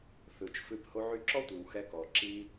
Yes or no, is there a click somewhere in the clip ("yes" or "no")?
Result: yes